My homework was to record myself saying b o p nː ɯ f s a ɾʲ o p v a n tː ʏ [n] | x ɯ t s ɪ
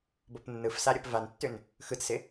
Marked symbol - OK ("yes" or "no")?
yes